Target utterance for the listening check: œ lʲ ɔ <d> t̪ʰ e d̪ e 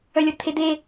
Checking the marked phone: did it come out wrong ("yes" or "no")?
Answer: no